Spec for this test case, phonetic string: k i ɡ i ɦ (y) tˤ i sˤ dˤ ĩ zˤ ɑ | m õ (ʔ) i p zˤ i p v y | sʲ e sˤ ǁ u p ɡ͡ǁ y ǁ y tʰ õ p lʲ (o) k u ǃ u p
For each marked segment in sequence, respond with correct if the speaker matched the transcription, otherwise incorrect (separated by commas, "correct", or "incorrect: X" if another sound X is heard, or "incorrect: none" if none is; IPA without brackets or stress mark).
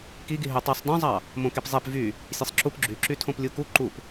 correct, incorrect: k, incorrect: u